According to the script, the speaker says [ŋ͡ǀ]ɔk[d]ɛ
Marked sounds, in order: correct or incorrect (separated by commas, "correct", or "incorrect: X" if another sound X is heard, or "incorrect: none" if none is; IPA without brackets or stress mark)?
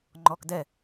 incorrect: ŋ͡ǃ, correct